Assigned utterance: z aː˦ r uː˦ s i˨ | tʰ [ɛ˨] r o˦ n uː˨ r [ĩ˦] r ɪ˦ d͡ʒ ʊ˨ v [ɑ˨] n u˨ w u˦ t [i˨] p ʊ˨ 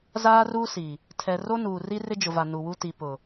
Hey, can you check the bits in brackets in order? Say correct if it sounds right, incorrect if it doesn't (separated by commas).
correct, incorrect, incorrect, correct